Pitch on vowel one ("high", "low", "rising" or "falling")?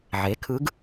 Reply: rising